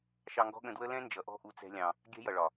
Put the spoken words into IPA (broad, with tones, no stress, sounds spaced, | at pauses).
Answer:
ʃ ɑ˧ ŋ ɡ ɔ̤˦ ɠ ə̃˧ d w ə˦ l ɛ̃˦ n d͡ʒ ʌ˨ ʔ ɔ̤˦ ʔ u˧ t͡s ɛ̤˦ lʲ ɑ̃˧ | ɡʲ ɛ̤˦ j ʌ˨ ɭ ɒ˨